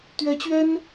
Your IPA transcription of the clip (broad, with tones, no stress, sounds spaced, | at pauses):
t̪ ɥ ɛ˧˥ t͡ɕ ɥ ɛ˥ n